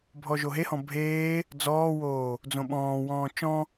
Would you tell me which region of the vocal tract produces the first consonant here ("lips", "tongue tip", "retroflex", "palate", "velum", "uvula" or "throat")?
lips